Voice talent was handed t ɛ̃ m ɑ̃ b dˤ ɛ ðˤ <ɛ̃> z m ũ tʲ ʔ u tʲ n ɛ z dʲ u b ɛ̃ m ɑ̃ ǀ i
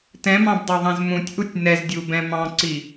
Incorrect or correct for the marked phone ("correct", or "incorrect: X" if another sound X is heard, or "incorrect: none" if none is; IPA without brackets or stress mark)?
correct